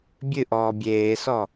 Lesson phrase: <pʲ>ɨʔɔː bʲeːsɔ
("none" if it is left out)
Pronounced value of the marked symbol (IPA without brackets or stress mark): bʲ